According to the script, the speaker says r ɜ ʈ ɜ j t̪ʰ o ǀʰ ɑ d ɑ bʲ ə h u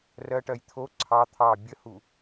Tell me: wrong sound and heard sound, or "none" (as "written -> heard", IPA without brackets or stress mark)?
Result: d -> t̪ʰ